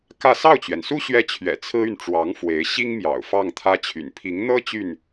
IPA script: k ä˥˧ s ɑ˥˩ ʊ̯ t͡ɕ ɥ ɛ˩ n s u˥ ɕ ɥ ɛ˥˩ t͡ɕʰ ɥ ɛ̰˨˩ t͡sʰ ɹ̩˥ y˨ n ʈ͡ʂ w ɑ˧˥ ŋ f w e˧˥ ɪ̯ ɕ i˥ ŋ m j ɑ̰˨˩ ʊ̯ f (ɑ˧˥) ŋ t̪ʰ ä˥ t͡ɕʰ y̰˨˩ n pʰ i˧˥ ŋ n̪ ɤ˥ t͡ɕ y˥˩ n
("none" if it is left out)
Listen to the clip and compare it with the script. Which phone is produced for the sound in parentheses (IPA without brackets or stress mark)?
ɑ˥˩